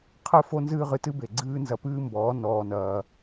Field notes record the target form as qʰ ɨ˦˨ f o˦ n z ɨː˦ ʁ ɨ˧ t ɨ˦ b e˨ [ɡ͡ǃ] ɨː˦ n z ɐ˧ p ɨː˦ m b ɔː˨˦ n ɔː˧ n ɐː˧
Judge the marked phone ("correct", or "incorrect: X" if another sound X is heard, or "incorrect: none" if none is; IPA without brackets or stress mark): incorrect: ɡ͡ǀ